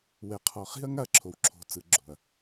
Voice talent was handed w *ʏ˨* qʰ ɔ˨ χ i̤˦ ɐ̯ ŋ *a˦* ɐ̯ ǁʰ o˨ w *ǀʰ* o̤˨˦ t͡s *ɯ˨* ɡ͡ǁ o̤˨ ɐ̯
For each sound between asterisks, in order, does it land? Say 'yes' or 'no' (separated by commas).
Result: no, yes, no, yes